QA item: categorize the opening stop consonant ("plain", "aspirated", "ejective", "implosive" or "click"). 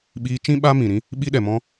implosive